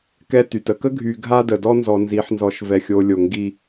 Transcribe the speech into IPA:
k ɛ˦ t y˨ t ə˦ k ə˦ ɡʱ y˨ ɡʱ a˦ d ə˨ d ɔ˦ n z ɔ˨ n z i˨˦ ħ n z ɔ˨ ʃ v ɛ˨ xʲ o˨ lʲ o˨ ŋ ɡ i˦

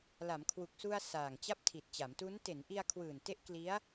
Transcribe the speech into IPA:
l a˩˦ m kʰ w u˨˩ k̚ s u˧ a̯ s aː˨˩ ŋ t͡ɕ a˥˩ p̚ tʰ i˨˩ t̚ t͡ɕ a˩˦ m t u˦˥ n t e˩˦ n ʔ i˧ a̯ kʰ w ɯː˨˩ n t e˦˥ ʔ k l i˦˥ a̯

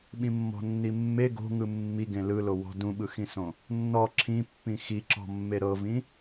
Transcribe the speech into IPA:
ɓ ĩ mː ɔ̤ nː i mː e ɡ o̤ ŋ ɯ mː i ɡ ẽ l ɯ l o w ɔ̤ d ũ ɓ ɯ x ĩ s õ | nː ɔ ǁʰ ĩ pː ĩ x i ǁ ɔ̤ mː e ɾ ɤ v ĩ

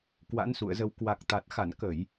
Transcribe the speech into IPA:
k w a̰˧˥ n s ṵ˧˨ ə̯ z ə˧ w k w a˨˩ k̚ t̪ a˨˩ t̚ x a˧˩ n k ə˧˩˨ j

